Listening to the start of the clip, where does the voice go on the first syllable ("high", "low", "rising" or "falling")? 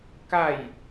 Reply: falling